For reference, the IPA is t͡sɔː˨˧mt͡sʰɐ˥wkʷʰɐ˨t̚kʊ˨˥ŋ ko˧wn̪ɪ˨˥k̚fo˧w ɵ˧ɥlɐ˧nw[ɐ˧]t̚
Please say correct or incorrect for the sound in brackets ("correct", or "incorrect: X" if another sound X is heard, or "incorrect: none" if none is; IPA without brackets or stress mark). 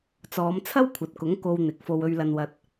correct